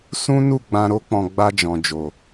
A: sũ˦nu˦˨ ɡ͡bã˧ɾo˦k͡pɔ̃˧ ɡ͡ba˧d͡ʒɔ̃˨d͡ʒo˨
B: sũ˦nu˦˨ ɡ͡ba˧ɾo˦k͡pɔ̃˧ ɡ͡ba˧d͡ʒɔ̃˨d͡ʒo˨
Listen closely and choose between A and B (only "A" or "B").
A